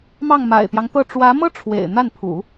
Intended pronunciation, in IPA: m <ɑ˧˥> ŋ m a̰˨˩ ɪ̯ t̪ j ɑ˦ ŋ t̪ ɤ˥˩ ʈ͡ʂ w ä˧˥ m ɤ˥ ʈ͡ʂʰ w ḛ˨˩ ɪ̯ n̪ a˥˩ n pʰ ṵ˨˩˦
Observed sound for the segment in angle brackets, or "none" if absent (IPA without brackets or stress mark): ɑ˥˩